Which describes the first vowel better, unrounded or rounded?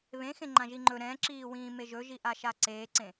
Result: unrounded